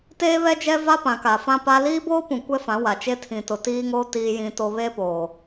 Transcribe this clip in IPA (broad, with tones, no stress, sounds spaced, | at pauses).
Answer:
t eː˦ β ɛ˦ d͡ʒ ɛ˦ v a˦ p ã˨ k a˨ f ã˦ p a˦ l iː˦ b oː˦ p ũ˨ kʷ ɛ˦ f ã˨˦ w a˨ t͡ʃ e˦ tʰ ĩ˨ t ʊ˨ t iː˦ ŋ oː˦ t iː˦ j ĩ˦ t o˦ β e˦ p oː˨